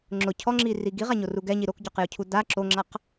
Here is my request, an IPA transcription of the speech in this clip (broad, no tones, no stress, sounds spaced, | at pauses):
ŋ͡ǁ ʊ cʰ ɔ ŋ͡ǁ i r i ɡ i ʁ a ɲ o r u ɡ ɛ ɲ i ɾ o k ɟ ɔ q j ʊ cʰ u d a ǁ o ŋ͡ǁ a q